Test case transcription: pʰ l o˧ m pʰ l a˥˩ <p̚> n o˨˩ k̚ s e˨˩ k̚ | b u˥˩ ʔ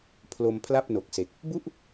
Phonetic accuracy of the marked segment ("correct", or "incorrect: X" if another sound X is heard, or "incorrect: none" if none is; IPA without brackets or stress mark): correct